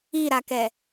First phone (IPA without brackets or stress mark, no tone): i